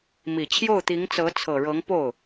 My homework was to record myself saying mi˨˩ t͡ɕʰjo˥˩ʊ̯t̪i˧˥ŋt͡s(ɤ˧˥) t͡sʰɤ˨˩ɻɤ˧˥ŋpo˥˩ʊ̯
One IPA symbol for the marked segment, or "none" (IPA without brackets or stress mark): ɤ˧˥